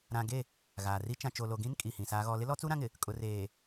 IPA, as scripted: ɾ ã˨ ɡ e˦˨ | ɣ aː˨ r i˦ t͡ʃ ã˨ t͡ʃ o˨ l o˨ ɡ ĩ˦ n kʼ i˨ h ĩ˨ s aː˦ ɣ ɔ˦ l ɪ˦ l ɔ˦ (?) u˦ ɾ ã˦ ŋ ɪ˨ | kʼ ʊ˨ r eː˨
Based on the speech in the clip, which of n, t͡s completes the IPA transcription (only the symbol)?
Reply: t͡s